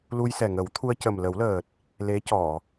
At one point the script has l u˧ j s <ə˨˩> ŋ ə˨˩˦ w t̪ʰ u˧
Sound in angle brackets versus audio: incorrect: ɛ˨˩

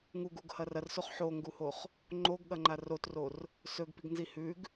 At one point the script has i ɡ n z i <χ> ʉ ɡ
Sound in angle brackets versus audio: incorrect: h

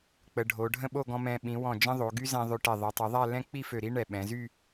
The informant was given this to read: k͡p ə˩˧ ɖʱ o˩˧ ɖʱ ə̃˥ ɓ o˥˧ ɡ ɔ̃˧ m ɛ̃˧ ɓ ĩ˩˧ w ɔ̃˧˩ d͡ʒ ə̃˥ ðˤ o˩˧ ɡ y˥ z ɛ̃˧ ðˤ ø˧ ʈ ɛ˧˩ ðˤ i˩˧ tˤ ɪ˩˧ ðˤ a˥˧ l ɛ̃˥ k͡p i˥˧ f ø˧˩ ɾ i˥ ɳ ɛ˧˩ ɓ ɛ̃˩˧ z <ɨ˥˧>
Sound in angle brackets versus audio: incorrect: y˥˧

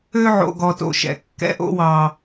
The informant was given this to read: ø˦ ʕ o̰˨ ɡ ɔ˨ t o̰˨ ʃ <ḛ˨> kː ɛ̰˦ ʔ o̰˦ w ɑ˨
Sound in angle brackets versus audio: incorrect: ɛ̰˨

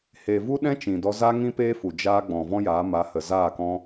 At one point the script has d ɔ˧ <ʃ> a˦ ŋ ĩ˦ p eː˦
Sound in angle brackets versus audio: incorrect: z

